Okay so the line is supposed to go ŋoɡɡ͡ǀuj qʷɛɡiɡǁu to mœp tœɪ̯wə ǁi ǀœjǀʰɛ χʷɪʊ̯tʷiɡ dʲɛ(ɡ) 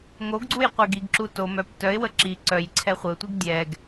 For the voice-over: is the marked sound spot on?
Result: yes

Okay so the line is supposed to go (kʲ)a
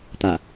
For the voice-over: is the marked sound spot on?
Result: no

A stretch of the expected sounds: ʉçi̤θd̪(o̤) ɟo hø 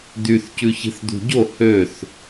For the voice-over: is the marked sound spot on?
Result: no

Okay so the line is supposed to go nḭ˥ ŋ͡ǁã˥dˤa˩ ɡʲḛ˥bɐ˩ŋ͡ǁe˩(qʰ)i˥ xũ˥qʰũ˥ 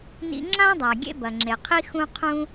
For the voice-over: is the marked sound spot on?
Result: yes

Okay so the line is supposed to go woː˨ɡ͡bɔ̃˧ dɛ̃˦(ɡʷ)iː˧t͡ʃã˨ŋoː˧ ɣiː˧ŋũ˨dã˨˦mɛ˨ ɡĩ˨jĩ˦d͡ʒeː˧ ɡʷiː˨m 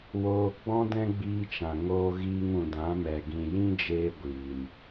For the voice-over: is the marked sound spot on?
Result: no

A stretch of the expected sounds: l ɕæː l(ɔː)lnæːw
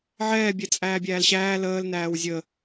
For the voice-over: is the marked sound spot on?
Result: no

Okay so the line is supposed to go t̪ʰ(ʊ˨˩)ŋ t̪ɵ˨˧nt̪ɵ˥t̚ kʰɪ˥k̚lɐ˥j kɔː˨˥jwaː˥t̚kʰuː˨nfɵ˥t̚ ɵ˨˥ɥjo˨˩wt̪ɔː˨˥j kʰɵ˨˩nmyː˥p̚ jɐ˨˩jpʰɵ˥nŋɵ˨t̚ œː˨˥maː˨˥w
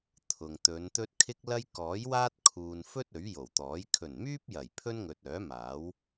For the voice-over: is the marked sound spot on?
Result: no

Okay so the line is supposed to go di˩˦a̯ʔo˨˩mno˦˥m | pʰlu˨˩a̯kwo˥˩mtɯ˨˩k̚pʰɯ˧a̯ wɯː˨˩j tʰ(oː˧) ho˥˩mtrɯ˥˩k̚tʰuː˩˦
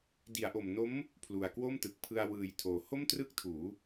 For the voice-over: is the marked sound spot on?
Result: no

